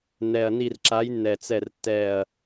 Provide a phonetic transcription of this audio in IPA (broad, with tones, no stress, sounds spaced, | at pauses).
n ɛ˨˩ ɐ̯ n i˦˨ r ǁ a˨˦ j nː ɛ˨˩ t͡s ɛ˦˨ r tː ɛ˦˨ ɐ̯